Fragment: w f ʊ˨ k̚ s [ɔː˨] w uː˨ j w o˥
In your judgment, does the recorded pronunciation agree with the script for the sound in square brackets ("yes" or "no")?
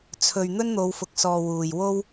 yes